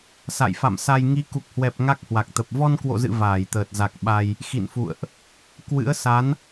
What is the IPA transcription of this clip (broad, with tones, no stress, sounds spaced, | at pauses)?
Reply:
s a̰˧˨ j f a̰˧˨ m s a˧ j ŋ i˨˦ k u˨˩ k̚ h w ɛ˨˩ p̚ ŋ a˦˥ k̚ h w a˨˩ k̚ t̪ ə˨˩ p̚ v ɔ˧ n k w o̰˧˨ z ɨ̰˧˨ v aː˧˩ j t̪ əː˨˩ t̚ z a˨˩ k̚ ɓ a˧ j | x ḭ˧˨ n f ṵ˧˨ ə̯ ʔ | k w ɨ̰˧˥ ə̯ s a˨˦ n